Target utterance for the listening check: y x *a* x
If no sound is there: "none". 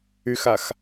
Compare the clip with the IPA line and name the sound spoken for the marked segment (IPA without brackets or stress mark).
a